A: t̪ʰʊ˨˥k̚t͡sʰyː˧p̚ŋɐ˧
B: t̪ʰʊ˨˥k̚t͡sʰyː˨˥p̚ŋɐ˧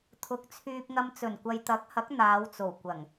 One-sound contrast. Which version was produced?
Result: A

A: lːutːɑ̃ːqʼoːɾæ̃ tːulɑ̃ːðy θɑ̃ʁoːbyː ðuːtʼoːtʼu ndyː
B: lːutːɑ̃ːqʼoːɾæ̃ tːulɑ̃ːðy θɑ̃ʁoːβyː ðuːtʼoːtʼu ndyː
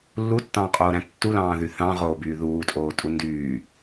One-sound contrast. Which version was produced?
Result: A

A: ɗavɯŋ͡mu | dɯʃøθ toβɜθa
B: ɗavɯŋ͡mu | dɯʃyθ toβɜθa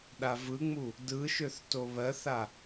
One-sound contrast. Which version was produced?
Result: A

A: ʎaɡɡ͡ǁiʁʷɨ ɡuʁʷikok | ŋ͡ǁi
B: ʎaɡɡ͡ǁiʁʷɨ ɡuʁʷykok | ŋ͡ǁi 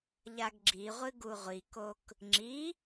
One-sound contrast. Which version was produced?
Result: A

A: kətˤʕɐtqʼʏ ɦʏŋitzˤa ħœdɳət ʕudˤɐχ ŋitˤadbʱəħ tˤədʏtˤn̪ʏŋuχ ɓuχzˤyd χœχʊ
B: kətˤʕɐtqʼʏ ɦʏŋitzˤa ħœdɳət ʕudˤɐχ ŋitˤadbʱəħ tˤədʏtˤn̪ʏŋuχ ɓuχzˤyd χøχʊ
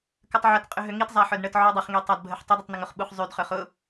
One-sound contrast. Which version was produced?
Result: A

